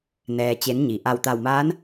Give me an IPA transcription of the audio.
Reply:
n ɛː˩ t͡ɕ e˩˧ n ɲ i˩ ʔ a˧˩ w t̪ a˧˩ w m aː˧˥ n

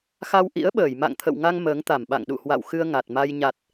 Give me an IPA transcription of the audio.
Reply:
x a˧ w ʔ ḭ˧˥ ə̯ ɓ əː˧˩ j m a̰˧˨ ŋ t̪ʰ ə̰˧˨ w ŋ a˧ ŋ m əː˨˦ ŋ t̪ a˧˩ m ɓ a̰˧˨ ŋ ɗ ṵ˧˨ h w a̰˧˨ w x ɨ˧ ə̯ ŋ a˨˩ t̚ m a˧ j ɲ a˨˩ t̚

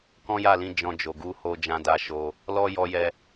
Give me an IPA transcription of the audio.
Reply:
k ɔ̃˦ j a˦˨ l ĩ˧ d͡ʒ ɔ̃˧ d͡ʒ o˨ ɡ u˧ h o˧ d͡ʒ ã˧ d a˧ ʃ o˧ | l ɔ˦ j ɔ˦ j ɛ˦

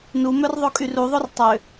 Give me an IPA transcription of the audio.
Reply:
n u m œ r ðˤ o kʼ y r u ðˤ o r tˤ ø

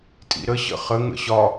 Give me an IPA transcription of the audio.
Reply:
tʼ ḭ ɾ ə ɕ ə̰ χ ə ŋ ə̰ ɕ ɒ

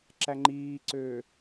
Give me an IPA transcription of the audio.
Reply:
ǁ æ ŋ͡ǃ iː ǀ øː

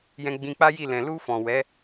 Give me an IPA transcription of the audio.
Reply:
j ɛ̃˧ ɡ͡b ĩ˧ k͡p a˦ j i˦˨ l ɛ̃˨ l u˧ f ɔ̃˨ w ɛ˨˦

